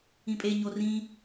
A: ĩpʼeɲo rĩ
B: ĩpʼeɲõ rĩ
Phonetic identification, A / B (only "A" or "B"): A